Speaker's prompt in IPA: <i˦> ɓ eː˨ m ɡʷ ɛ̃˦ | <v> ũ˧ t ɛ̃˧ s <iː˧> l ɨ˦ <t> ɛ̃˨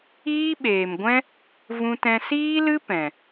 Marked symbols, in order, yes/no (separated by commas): no, yes, no, no